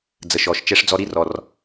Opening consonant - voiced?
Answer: yes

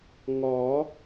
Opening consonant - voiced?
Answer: yes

